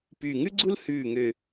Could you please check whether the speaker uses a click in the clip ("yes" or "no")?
yes